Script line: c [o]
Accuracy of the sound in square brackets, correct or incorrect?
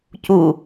incorrect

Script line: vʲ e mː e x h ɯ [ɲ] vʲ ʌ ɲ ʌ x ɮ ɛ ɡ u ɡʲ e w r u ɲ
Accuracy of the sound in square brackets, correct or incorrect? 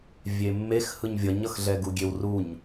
correct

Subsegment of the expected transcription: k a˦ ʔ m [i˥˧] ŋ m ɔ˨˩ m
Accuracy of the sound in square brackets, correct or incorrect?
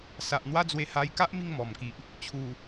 correct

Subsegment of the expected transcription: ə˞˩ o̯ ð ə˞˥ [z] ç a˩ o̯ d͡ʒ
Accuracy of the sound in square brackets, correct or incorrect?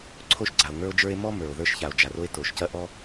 incorrect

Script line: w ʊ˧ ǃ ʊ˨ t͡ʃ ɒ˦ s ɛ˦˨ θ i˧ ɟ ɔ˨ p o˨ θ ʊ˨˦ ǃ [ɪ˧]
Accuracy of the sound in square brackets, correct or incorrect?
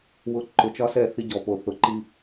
incorrect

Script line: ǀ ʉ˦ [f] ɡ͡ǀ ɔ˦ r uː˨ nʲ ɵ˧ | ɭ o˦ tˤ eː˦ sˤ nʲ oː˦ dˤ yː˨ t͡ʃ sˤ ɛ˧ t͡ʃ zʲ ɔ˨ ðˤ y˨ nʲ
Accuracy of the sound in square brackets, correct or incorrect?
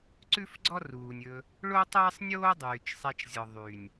correct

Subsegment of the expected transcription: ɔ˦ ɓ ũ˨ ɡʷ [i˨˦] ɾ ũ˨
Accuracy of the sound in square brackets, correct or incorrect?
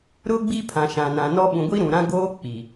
incorrect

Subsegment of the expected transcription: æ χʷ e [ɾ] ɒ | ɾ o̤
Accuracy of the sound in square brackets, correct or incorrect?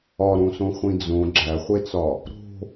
incorrect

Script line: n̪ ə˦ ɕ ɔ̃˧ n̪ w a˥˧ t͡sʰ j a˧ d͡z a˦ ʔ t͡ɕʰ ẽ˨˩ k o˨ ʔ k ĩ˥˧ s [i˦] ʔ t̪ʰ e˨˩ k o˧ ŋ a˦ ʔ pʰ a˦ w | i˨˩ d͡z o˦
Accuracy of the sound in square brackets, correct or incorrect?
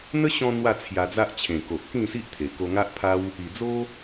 correct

